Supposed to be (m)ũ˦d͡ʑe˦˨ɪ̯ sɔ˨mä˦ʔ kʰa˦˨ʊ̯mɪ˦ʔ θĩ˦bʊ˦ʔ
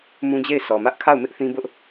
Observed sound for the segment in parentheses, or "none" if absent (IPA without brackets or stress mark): m